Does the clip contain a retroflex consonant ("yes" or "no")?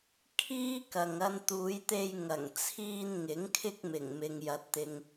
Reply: no